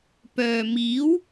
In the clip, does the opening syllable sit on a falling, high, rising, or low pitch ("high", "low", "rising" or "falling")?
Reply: low